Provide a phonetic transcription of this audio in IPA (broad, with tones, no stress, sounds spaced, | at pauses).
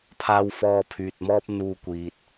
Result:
pʰ aː˧ w f ɔː˧ pʰ yː˨ t̚ m ɔː˥ p̚ n̪ uː˧ kʷ iː˨ t̚